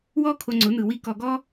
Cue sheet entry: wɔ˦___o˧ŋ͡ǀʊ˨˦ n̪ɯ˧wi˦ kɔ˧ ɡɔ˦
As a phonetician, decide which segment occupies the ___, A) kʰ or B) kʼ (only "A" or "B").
A